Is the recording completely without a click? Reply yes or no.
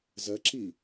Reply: no